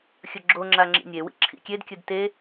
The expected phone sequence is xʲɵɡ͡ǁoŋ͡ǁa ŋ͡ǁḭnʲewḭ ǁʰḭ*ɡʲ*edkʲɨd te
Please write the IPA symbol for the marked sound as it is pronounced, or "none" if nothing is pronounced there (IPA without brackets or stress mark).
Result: kʲ